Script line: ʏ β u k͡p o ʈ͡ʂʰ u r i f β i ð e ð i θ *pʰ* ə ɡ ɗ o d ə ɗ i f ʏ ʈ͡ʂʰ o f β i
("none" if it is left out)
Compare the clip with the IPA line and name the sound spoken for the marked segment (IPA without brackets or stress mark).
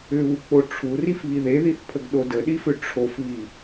pʰ